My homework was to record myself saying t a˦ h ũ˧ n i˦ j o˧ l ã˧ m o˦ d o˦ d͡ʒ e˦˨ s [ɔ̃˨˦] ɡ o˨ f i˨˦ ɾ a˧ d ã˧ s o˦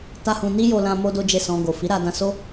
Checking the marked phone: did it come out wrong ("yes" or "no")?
yes